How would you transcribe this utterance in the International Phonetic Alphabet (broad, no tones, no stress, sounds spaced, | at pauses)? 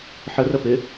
ħ ə r ə p ɪ